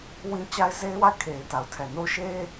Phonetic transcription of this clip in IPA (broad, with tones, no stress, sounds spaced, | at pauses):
w ĩ˦ t͡ɕ a˦ ɪ̯ z e˦ ɪ̯ w a˦˨ ɪ̯ kʰ e˨ ɪ̯ t a˨ ʊ̯ tʰ ɛ˨ n o˦ ʃ e˦